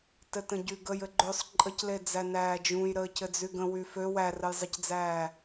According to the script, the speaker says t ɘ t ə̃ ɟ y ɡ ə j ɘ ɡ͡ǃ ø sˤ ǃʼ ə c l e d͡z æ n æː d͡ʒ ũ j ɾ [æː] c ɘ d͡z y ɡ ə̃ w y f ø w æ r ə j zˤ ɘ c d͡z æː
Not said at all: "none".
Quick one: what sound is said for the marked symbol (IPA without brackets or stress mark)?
əː